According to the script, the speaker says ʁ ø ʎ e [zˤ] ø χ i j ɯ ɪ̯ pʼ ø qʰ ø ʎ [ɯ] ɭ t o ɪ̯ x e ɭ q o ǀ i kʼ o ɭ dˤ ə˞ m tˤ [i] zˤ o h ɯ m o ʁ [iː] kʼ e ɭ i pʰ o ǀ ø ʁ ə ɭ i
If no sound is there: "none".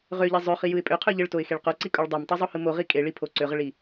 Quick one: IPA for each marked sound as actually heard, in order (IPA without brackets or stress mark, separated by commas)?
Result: zˤ, ə, i, i